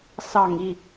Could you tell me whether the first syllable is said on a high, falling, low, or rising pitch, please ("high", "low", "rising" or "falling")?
low